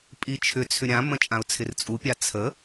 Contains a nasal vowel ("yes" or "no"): yes